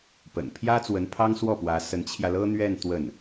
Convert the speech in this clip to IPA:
p ə̰˨˩ n pʰ j ä˥ t͡s w ə˧˥ n pʰ ɑ˥ ŋ s w ɔ˥˩ p w ä˧˥ s ə˧˥ n t͡ɕʰ j ä˧ l ɤ˥ n̪ ɥ ɛ˥˧ n t̪ w ə˥˩ n

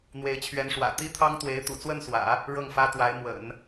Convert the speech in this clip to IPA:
n̪ w e˧˥ ɪ̯ t͡ɕʰ ɥ ɛ˧˥ n ʂ w ä̰˨˩ t̪ i˥ t̪ʰ ɑ˥ ŋ t̪ w e˧˥ ɪ̯ t̪ ṵ˨˩ t͡s w ə˥˩ n s w ä̰˨˩˦ | ɻ ɤ˥˩ ŋ f ä˥ t̪ w a˧˥ ɪ̯ m w ə̰˨˩˦ n

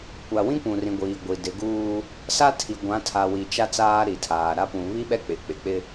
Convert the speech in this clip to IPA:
kʷ a˨ w ĩ˦ kʷ ũ˨ r ĩ˨ ɡʷ iː˨ ɡʷ i˨ d ɪ˨˦ ɡ uː˦ | s a˦ tʰ i˨ ɡʷ ã˨˦ tʰ a˨ w i˨ t͡ʃ a˦ t͡s aː˦ ɾ i˨ tʰ aː˨ ɾ a˦ p ũ˨ β i˦ ɓ ɛ˦ k͡p ɪ˨ k͡p ɪ˨ k͡p ɪ˦

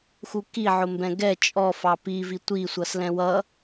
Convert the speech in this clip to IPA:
x u k i ʕ ʊ m b ɛ̃ ɡ ɛ t͡ʃʼ ɔ f ɑ p i v i tʷ i sʷ ʌ s l ɛ̃ w ʌ

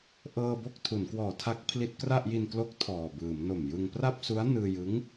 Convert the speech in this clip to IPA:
ʔ ɤː˧ b o˥˩ k̚ tʰ u˩˦ n k w ɔː˨˩ tʰ a˦˥ k̚ pʰ l i˦˥ t̚ k r a˥˩ ʔ j i˧ n k l o˦˥ k̚ tʰ ɔː˨˩ b ɯː˩˦ m n o˨˩ m j ɯ˧ ŋ p r a˥˩ p̚ s u˦˥ a̯ n ɯː˧ j ɯ˦˥ ŋ

